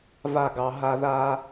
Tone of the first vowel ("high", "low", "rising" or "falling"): falling